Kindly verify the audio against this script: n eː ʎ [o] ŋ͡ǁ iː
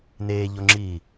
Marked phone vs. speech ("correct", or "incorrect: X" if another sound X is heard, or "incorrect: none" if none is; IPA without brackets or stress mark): correct